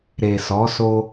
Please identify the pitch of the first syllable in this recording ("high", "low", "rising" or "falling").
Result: low